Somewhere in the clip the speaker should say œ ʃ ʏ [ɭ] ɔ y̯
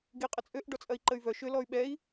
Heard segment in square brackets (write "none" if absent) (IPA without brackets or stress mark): l